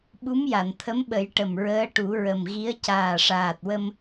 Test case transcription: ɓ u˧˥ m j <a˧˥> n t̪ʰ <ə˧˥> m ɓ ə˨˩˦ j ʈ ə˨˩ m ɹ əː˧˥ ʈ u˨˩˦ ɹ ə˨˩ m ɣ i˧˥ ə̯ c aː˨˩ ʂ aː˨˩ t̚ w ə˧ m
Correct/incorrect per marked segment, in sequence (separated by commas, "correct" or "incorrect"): incorrect, correct